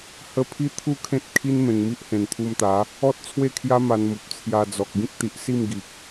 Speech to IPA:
h ə˧ pʰ i˦ t̪ʰ u˥˧ kʰ ẽ˦ t̚ kʰ i˦ n m ẽ˨˩ ŋ m i˦ ʔ h ẽ˨˩ n t̪ʰ u˧ m t̪ a˨˦ | ɔ˦ t̚ t͡sʰ w e˥˧ kʰ j a˦ m a˧ n m u˨ p̚ t͡sʰ j a˧ d͡z ɔ˨ k̚ ɡ ĩ˦ k̚ t̪ i˨ ʔ s i˥˧ m ɡ i˨ k̚

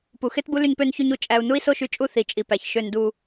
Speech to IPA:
p u˨ x e˦ t b u˦ l y˧ ɲ p ø˧ n ç y˧ ɲ u˧ t͡ʃʼ æ˧ u̯ n u˦ i̯ s o˦ ʃ y˧ t͡ʃʼ u˦˨ θ i˨ t͡ʃʼ i˨ p æ˨ ç ʃ ø˧ n d u˧

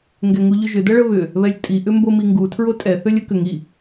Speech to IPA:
ŋ ɡ ɛ ŋ u ʎ ʏ ʒ ʏ d ɐ ɭ ə β ʏ | β ɛ lʲ tʼ i ʔ ʏ m b o m i ŋ ɡ u tʰ ɹ o tʼ ɛ θ ø lʲ ə k ʏ ŋ i

